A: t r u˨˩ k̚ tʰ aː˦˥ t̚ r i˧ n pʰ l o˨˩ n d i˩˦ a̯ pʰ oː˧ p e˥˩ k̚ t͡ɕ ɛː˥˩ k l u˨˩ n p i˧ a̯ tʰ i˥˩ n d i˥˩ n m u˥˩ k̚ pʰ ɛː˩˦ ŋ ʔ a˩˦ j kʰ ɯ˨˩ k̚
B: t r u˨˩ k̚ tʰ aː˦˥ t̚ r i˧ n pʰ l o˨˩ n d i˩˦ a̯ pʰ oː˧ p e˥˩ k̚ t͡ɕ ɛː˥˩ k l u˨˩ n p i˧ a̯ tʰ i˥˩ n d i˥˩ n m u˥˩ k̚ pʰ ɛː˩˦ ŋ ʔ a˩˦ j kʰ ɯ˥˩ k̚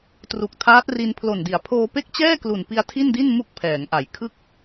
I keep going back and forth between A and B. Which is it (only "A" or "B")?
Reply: B